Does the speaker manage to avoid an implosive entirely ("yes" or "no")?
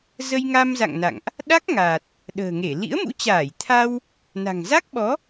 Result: no